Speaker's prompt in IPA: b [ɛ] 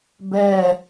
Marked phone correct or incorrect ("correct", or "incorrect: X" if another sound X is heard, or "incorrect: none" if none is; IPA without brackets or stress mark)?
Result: correct